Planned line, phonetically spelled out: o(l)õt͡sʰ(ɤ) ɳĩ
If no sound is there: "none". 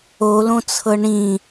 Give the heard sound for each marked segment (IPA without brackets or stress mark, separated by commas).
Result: l, ɤ